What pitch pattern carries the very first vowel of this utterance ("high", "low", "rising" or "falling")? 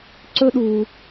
high